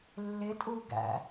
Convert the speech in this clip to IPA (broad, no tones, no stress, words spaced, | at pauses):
lːɪtʼuɡæ̰